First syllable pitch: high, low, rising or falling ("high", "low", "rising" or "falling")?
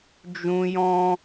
high